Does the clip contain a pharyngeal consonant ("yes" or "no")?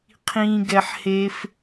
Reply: yes